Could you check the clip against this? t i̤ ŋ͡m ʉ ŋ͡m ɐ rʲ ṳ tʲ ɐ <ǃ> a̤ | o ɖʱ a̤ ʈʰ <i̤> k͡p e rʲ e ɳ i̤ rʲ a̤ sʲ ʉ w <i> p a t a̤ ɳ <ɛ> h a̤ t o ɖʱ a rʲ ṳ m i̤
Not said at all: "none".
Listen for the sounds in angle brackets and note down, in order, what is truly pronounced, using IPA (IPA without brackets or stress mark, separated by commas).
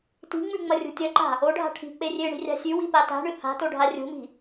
ǃ, i̤, i, ɨ